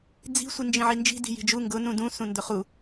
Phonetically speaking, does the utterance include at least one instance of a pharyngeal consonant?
yes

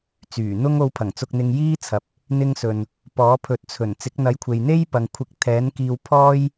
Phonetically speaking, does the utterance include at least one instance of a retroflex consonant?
no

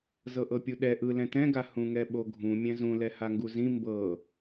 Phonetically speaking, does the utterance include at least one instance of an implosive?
yes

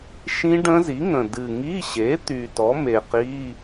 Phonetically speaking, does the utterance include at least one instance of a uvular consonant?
yes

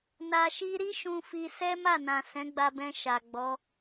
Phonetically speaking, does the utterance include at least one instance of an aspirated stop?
no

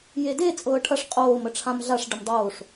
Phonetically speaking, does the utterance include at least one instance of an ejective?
yes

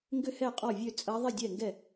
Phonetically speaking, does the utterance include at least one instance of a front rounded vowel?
yes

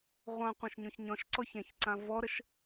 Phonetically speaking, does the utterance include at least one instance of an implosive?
no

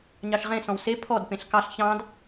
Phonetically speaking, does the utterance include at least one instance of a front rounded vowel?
no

